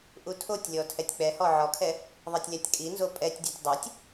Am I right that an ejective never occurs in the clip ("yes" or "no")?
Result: no